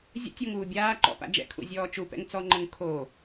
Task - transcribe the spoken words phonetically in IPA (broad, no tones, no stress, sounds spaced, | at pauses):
zʲ ə̰ tʲ o ŋ uː bʲ aː ǃ ɔ̰ p a̰ d͡ʒ ɛ̰ kʰ ṵ zʲ ɔː t͡ʃ u p ɛ̰ ŋ t͡s ɔ ŋ͡ǃ ə ŋ kʰ o